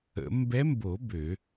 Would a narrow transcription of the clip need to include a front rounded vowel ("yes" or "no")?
yes